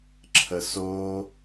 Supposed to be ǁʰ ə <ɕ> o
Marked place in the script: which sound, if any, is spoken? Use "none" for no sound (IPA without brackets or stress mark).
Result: s